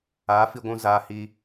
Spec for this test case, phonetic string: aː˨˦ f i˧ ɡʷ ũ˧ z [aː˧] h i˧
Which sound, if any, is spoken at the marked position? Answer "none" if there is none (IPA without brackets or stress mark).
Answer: aː˧